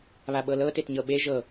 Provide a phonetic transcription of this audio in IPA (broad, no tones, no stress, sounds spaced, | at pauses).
β a ɓ ɤ l ɤ t e t ɲ ɤ ɓ e ʒ ɤ